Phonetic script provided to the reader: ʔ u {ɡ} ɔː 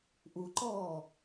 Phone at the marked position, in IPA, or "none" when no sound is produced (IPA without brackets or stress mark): ǃ